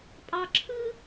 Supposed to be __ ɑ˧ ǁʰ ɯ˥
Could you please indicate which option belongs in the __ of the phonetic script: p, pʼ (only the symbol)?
pʼ